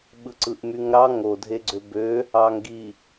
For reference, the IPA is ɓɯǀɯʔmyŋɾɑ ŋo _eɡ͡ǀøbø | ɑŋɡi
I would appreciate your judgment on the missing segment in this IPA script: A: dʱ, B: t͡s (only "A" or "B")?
A